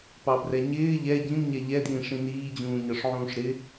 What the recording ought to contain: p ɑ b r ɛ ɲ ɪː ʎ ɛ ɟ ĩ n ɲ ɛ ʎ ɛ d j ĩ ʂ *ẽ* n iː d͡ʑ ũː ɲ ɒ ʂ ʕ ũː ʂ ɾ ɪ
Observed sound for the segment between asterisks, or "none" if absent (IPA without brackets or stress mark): ĩ